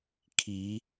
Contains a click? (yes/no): no